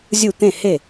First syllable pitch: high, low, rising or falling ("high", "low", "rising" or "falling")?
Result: falling